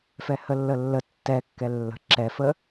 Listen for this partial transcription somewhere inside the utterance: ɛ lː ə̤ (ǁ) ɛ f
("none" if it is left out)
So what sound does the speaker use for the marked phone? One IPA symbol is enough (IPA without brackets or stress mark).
ǁ